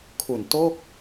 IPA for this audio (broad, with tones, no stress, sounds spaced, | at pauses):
kʰ u˨˩ n t o˥˩ k̚